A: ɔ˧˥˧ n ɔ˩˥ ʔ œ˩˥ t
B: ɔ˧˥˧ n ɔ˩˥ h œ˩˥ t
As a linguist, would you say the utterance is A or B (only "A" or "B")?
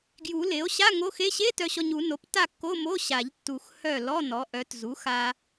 A